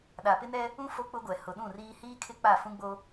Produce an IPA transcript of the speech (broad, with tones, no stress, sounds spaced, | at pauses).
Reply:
ɗ a˨ p ɪ˦ n ɛ˦ | ũ˦ f o˦ k͡p ʊ˦ ɡʷ ɛ˨ h ʊ˨ ɗ ũ˦˨ r iː˦ h iː˦ kʰ ɪ˦ k͡p a˦˨ f ũ˦ ɡ͡b o˦